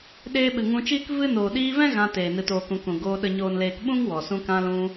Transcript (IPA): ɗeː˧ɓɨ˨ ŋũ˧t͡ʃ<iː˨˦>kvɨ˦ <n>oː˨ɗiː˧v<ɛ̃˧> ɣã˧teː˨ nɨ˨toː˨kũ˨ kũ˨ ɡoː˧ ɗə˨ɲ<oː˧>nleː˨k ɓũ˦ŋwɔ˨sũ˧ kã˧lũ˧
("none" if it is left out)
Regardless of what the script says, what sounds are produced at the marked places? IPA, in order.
iː˦, n, ɛ̃˦, oː˨

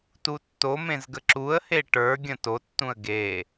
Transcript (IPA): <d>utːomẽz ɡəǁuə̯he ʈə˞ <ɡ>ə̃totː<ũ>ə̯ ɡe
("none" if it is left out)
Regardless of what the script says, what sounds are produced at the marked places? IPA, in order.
t, ɡʲ, ũ

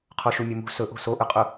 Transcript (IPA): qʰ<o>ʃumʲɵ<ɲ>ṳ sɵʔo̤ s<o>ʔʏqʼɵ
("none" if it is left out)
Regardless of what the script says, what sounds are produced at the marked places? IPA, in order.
o, m, o

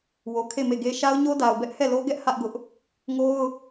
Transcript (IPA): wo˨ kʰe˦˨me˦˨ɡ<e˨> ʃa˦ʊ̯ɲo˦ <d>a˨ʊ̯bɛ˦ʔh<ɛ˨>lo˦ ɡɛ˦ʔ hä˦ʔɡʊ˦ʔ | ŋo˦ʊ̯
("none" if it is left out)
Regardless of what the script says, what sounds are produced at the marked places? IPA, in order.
e˦, d, ɛ˦˨

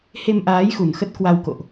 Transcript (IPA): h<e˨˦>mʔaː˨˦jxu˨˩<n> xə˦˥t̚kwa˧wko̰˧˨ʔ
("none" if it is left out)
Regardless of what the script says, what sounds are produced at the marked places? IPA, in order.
e˧, n

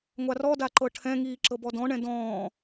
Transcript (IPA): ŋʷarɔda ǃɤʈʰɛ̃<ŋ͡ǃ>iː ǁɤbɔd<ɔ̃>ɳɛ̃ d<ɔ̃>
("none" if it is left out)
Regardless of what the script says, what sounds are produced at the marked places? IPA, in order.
ŋ, ɔ̃, ɔ̃ː

